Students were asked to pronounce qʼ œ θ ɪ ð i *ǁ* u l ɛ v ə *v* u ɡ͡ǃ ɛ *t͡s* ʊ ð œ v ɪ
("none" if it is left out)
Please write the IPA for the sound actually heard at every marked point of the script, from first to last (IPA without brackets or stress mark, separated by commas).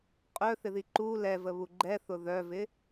ǃ, β, θ